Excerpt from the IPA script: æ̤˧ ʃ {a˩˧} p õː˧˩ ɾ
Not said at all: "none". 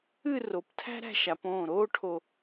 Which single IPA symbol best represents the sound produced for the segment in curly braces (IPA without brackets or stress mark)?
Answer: a˩˧